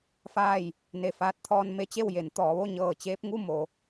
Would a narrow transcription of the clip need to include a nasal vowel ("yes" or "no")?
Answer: no